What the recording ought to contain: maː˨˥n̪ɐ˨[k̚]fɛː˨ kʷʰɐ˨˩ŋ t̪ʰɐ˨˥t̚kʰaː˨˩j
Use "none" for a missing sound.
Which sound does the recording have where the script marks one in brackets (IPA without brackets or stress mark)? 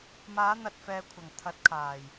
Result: t̚